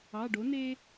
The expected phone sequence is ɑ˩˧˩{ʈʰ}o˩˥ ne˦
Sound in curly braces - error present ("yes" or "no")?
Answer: yes